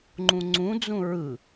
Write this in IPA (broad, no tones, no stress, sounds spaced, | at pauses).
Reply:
ŋ͡ǃ ũ ŋ͡ǀ ũ d͡z ũ ɹ ɯ